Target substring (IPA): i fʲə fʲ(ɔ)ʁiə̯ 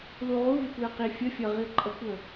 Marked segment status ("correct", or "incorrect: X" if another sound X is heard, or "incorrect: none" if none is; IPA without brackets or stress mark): incorrect: ʌ